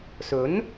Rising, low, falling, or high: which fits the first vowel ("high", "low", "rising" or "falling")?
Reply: rising